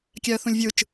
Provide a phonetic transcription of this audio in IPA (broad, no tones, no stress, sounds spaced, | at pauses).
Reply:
kʲ æ ə̯ θ ũ lʲ vʲ ɯ t͡ʃ